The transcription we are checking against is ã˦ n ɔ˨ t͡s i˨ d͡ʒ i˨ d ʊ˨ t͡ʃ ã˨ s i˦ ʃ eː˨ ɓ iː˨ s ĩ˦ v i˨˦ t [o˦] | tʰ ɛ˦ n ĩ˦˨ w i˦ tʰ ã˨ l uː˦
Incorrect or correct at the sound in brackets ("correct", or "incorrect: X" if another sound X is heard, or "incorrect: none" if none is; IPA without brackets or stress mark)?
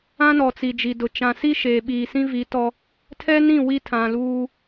incorrect: ɔ˦